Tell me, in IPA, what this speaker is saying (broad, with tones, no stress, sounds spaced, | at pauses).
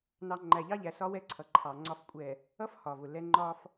n ɑ˨ ŋ͡ǃ æ˨ ʎ ɑ˦ ʎ æ˨ s ɒ˦ w ɛ˦ ǀʰ ʌ˨ ǃʰ ɑ˨ ŋ͡ǀ ɒ˨ f kʷʼ ɛ˨ | ʌ˦ f h ɒ˨ v ʊ˨ l ɛ˦ ŋ͡ǃ ɒ˦ f